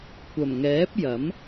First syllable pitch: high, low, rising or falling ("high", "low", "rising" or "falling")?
low